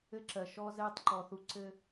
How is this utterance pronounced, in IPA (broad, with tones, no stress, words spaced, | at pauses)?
ɘ˦ǁɜ˨ ʃɔ˦zɛː˦tˤǃɔ˨θu˦ ǀɘ˦